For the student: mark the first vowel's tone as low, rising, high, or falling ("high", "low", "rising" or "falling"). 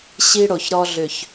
high